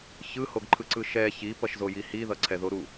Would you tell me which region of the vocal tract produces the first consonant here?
palate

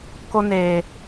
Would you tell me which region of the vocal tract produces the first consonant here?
velum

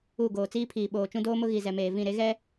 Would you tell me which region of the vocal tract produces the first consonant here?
velum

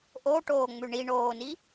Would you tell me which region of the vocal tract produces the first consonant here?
throat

